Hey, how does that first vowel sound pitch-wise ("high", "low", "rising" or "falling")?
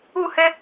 falling